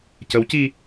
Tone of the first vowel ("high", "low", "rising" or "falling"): rising